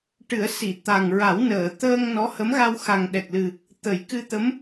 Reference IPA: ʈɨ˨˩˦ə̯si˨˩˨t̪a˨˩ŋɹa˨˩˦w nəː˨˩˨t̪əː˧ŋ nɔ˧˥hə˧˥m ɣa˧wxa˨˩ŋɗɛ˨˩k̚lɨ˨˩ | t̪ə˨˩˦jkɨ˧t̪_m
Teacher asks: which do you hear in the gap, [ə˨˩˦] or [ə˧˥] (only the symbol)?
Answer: ə˧˥